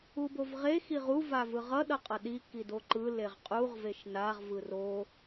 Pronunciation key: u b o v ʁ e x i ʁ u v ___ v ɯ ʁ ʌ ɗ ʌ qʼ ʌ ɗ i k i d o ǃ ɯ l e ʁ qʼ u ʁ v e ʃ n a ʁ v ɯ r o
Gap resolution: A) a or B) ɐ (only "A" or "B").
A